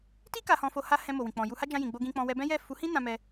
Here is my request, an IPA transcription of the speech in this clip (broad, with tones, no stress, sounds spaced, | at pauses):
t i˦ k a˧ h ɔ̃˧ f o˧ h a˧ h ɛ̃˧ m o˨ w ĩ˨ k͡p ɔ̃˨ j u˧ h a˦ d͡ʒ ã˧ j ĩ˨ ɡ͡b o˧ ɡ ĩ˧ k͡p ɔ̃˧ w ɛ˧ b ɛ̃˦ j ɛ˦˨ f u˨˦ h ĩ˦ n ã˦ m ɛ˦